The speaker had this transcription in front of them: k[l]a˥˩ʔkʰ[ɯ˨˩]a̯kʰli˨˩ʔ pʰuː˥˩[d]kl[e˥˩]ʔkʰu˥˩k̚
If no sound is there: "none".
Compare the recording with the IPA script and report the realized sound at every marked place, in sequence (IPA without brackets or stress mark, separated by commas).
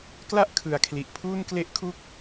l, ɯ˨˩, n, e˥˩